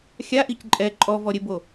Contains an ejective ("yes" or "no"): yes